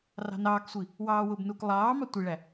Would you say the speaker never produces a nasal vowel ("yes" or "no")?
yes